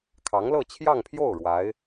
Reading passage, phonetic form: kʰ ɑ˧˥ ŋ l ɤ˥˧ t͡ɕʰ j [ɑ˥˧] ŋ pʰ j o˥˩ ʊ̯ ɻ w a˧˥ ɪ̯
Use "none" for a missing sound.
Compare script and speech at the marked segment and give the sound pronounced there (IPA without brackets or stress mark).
ɑ˥˧